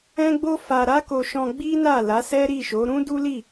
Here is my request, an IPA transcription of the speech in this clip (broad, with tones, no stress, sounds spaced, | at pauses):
ɛ̃˦ ɡ͡b o˦ f a˧ ɾ a˦ k o˧ ʃ ɔ̃˧ ɡ͡b i˦ n a˦˨ l a˨˦ s ɛ˦ ɾ i˦˨ ʃ o˨˦ ɾ ũ˦ d u˦ l i˦˨